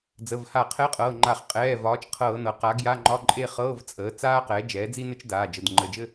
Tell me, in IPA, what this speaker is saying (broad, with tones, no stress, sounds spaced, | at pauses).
d͡z ə˩˧˩ v h a˧˩˧ qʰ ɛ˧˥˧ qʼ ɤː˩˧˩ ŋ͡ǃ a˧˩˧ χ qʼ ɛː˩˧˩ v ɒː˩˥ t͡ʃ qʰ ɤː˧˩˧ n ɤ˩˥ q a˩˥ ɡ j a˧˥˧ ŋ͡ǃ ɒ˧˥˧ ǃʼ e˥˧ χ ɤː˧˥˧ v t͡sʼ əː˩˥ t͡s aː˥ q ɛː˩˥ d͡ʒ ɛː˩˥ d͡z i˥ n ɘ˥ t͡ʃ d aː˩˧˩ d͡ʒ ə˩˧˩ d ŋ͡ǃ ə˩˧˩ d͡ʒ ɘ˥˧